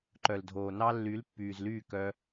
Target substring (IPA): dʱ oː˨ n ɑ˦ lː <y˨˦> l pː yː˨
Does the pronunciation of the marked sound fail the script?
no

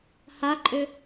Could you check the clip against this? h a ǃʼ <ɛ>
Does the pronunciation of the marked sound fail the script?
yes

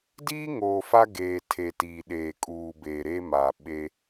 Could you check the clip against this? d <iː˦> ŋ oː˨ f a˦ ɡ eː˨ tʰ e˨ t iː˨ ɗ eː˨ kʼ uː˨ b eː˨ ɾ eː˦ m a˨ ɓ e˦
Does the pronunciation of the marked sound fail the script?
no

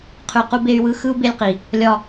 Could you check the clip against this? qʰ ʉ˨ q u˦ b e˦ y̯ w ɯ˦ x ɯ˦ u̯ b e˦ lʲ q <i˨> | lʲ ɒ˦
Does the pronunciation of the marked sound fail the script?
no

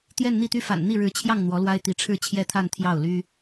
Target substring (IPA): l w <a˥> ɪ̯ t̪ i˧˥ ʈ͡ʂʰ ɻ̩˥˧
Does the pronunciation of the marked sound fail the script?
no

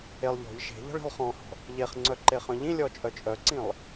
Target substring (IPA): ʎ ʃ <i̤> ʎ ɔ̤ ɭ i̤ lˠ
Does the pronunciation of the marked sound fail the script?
yes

